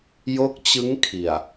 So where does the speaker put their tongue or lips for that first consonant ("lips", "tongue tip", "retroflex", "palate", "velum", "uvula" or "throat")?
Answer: palate